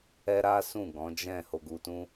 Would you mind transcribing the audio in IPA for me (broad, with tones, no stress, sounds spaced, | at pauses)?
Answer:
ɛ˦ ɾ a˦ s ũ˦˨ ɡ ɔ̃˨˦ d͡ʒ ɛ̃˦˨ h o˧ ɡ u˧ t ũ˦